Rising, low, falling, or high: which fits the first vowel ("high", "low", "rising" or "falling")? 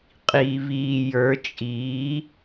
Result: low